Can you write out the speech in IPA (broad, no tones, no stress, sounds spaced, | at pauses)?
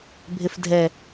bʱ ɪ f dʱ ɛ